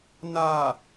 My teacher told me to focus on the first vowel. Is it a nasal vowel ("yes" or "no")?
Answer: no